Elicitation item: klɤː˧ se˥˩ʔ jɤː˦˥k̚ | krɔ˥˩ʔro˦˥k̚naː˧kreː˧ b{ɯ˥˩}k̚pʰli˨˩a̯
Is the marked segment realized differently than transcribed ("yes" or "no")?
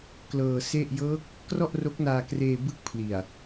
no